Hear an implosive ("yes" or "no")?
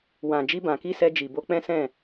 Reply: no